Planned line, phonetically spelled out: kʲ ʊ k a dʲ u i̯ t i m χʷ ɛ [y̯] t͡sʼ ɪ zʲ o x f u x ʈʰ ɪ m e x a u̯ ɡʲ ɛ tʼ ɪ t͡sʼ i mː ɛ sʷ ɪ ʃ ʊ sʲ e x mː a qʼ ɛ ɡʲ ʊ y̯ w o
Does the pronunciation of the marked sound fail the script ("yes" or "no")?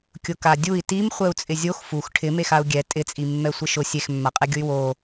yes